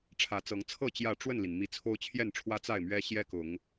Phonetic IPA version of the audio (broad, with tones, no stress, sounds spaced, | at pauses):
ʈ͡ʂʰ ä˨˦ t͡s ɤ˨˦ ŋ t͡sʰ ɤ˥˨ t͡ɕ j ä˥˨ ʈ͡ʂ w ə˥˨ n l i˩ n m i˨˦ t͡sʰ o˦ ʊ̯ t͡ɕʰ j ɛ˥˨ n ʈ͡ʂʰ w ä˦ t͡s a˥˨ ɪ̯ m ɥ ɛ˦ ɕ j ɛ˦ k ʊ˨˦ ŋ